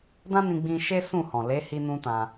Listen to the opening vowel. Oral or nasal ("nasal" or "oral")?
nasal